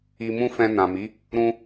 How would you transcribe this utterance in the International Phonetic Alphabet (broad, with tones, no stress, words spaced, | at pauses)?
i˧mũ˦fɛ̃˧ nã˨mi˨˦ | ɾũ˧